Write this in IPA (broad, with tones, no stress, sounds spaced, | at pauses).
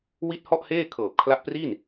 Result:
w i˥˩ t̚ h ɔ˥˩ ʔ h eː˥˩ kʰ ɤː˨˩ p̚ kʰ l a˦˥ ʔ p r i˥˩ n